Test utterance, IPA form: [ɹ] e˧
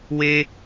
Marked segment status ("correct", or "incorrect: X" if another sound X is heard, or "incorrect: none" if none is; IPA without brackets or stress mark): incorrect: w